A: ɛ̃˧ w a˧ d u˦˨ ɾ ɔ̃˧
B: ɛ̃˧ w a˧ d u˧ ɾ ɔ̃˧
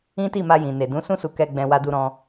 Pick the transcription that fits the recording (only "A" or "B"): B